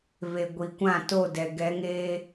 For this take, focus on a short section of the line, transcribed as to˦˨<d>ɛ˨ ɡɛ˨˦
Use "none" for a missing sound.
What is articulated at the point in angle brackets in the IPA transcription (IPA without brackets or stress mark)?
d